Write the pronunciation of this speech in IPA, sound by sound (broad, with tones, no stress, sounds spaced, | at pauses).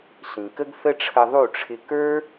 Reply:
ɬ ĩ˨ k ə˦ ɡ θ ə˦ ʈ͡ʂʰ ə˧ ðˤ u˦˨ ʈ͡ʂʰ ɪ˧ k ə˞˦